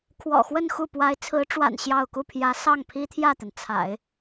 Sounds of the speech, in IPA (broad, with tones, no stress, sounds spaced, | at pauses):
kʰ w ɔ̰˨˩ x w ə˥˧ n x u˥˩ p w a˧˥ ɪ̯ t͡sʰ ɹ̩˧˥ ʈ͡ʂ w a̰˨˩ n ɕ j ɑ˥˧ ʊ̯ k u˥˩ pʰ j ä˧˥ s ɑ˥˩ ŋ pʰ i˥ t̪ʰ j ä˥˩ t̪ ə˩ n t͡sʰ a̰˨˩˦ ɪ̯